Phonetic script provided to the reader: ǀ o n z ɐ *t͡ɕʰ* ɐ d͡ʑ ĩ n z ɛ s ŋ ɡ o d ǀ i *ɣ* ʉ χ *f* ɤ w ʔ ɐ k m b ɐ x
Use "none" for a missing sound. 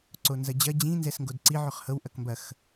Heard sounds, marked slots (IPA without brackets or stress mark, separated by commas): d͡ʑ, ʕ, h